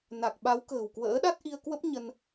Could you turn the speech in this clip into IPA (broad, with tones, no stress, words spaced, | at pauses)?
na˨˩k̚ɓa˨˦wkə̤ː˨˩wkwə̰ː˧˥ ɗa˦˥t̚ʔi˧ə̯kwə˦˥p̚ ɲə˧n